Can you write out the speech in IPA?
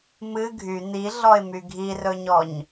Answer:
mɨ ɡʱy n̪iɮɔɪ̯my ɡʱirɵɲɔɲ

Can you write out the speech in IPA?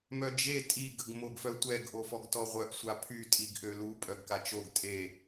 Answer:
mœd͡ʒe tʼi ɡəɡmoɡfœtʷɛɡ ʔofɔɡtɔʁʷœʔ sʷapʰy tʼiɡʔølu pʼœɡkat͡ʃoɡ tʼe

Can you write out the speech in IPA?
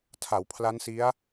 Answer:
tʰa˩˦wpʰla˦˥nsi˦˥a̯

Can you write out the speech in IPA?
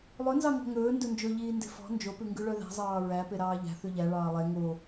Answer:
lˠɵnzɑ ŋɔ̤ŋɵː ndɵnd͡ʒɵʎiː nde̤fɔ̤ nd͡ʒopʉ ŋɡʉɭœðæ̤zˤɑː ɹæ peɾɑːʎæ̤ θʉʎæ ɭɑːlˠɛ ŋo

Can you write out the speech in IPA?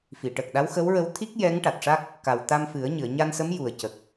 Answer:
fi˨˩˨ʈə˨˩k̚ɗa˧˥w xə˧˥wɹə˧w t̪ʰi˦˥k̚ jɛ˧˥ŋ ʈa˨˩t̚ʂa˦˥k̚ | ka˨˩wt̪a˧mfɨ˨˩˦ə̯ ɲɨ˨˩˨ə̯ɲa˧nsə˧˥m ju˨˩ə̯cə˨˩k̚

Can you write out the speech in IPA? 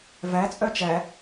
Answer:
væ t͡sʼœt͡ʃæ

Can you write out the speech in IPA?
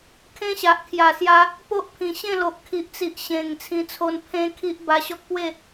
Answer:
kʰẽ˦ɕa˨ʔkʰja˨˩sja˧ | po˦ʔpʰĩ˨˩ɕẽ˥˧ lo˨ʔkʰi˨ʔt͡si˨ʔ ɕẽ˨˩ŋ t͡sʰĩ˧t͡sʰo˧n pʰẽ˦kʰi˦ʔ ba˧ɕɔ˦k̚pwe˥˧

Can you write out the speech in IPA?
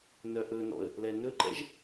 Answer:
nœʔɵnɔ̰ə̯ | lɛnɵǃɛ̰ʒ

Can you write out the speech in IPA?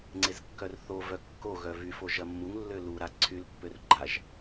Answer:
ŋ͡ǀezkːœrθovœ kːoɣœ vyfo ʒɐmːuŋlːø luɾa ǀʰylpːør ɡ͡ǃaʒ

